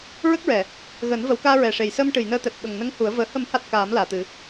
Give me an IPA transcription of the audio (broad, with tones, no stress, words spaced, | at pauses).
ɹə˦˥k̚ɹɛ˨˩˨ | ɣəː˨˩˦nvə˨˩˦wkaː˧ ɹɛ˨˩ʂe˨˩jsəː˧m ʈɨ˨˩˨jnəː˧t̪ɛ˨˩p̚ ɓə˨˩ŋnə˧˥ŋ hu˨˩˦ə̯ vəː˨˩ hə˨˩˦mha˨˩t̚ kaː˨˩˦m laː˨˩˨t̪ɨ˨˩˦